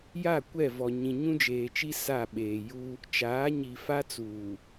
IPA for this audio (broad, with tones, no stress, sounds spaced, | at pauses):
j a˦˨ kʷ ɛ˦˨ v ɔ˨ ɲ ĩ˨ ɲ ũ˦ d͡ʒ eː˨ t͡ʃ i˦ s a˦˨ ɓ eː˨ j u˦ | t͡ʃ aː˨˦ ɲ i˨ f a˦ t͡s uː˨